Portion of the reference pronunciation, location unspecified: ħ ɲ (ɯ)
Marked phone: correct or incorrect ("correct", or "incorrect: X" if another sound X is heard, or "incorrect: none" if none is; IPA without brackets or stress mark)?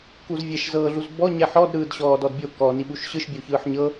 incorrect: ɤ